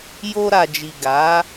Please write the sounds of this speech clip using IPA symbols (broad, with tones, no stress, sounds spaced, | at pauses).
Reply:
j o˧ ɾ a˨ d͡ʒ i˨ ɡ a˨˦